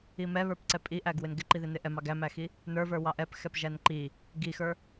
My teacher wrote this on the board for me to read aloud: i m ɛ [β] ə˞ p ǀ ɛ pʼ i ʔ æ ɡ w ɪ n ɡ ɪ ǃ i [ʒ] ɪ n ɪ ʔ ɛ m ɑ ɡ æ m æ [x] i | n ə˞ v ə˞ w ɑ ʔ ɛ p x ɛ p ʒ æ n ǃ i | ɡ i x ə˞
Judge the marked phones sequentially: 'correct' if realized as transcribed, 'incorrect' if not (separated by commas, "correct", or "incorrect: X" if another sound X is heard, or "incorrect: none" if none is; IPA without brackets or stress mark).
correct, incorrect: ð, correct